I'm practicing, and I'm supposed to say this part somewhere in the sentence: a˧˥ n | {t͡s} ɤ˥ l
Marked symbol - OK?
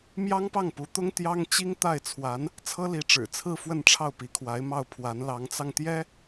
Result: no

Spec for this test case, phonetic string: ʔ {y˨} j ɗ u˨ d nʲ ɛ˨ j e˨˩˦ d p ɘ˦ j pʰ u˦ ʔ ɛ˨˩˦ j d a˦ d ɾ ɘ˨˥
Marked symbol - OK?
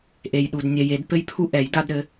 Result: no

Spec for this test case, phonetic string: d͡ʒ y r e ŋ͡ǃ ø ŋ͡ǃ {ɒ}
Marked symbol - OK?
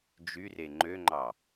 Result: no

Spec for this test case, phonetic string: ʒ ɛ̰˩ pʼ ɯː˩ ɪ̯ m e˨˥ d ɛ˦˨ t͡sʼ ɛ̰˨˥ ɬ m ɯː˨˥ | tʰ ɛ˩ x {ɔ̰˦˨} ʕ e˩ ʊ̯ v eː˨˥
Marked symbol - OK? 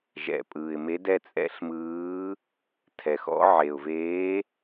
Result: no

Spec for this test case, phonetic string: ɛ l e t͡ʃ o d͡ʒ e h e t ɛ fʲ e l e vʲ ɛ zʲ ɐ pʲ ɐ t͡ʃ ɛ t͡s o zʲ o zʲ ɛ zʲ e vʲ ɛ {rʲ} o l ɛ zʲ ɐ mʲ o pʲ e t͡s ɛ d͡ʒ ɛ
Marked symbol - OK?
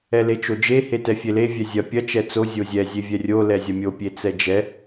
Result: yes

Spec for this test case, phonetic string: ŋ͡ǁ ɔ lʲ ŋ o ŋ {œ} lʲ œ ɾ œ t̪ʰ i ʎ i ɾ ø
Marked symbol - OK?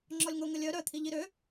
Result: no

